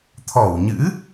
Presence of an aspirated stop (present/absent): present